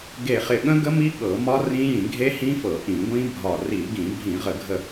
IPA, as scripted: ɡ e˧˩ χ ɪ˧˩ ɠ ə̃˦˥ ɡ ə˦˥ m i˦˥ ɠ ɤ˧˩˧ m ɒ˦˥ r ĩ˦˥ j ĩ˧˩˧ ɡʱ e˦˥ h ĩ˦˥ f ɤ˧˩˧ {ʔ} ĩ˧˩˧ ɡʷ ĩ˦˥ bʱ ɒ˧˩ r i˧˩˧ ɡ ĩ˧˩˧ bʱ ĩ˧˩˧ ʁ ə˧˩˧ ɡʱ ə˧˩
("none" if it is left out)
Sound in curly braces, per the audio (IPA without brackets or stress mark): ʔ